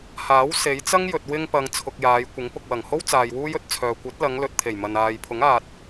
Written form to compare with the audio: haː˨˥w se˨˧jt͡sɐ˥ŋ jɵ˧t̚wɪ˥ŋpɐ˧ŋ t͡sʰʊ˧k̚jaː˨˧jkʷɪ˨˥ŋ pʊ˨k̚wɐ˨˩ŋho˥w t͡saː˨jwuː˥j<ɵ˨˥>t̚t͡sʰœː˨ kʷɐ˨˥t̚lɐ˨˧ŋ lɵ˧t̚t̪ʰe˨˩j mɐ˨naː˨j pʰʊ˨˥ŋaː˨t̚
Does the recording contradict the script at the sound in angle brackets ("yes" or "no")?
yes